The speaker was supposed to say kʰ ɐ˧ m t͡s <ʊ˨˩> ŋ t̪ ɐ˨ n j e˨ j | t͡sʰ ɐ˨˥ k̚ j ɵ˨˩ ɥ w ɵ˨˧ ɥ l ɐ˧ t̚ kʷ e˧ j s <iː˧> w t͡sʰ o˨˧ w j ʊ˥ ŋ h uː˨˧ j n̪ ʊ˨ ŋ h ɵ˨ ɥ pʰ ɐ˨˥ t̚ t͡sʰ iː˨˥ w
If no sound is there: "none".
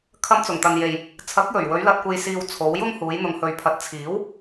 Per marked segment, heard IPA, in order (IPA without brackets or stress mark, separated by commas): ʊ˨˩, iː˧